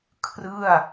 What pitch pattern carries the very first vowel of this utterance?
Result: falling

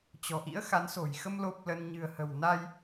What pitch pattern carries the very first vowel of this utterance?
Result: low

